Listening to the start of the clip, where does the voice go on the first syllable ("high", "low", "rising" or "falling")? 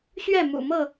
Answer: falling